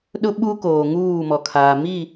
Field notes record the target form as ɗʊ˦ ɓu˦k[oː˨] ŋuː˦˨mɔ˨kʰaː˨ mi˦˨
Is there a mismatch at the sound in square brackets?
no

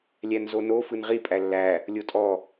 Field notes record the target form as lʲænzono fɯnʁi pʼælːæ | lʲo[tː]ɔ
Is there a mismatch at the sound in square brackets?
yes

